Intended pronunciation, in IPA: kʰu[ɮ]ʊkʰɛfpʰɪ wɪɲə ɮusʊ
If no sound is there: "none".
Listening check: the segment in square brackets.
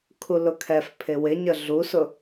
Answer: l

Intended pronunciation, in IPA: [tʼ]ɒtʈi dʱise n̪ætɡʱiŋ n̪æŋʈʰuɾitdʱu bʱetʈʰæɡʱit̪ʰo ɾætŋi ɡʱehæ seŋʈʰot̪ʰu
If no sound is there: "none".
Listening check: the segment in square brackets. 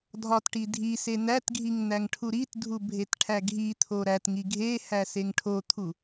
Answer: dʱ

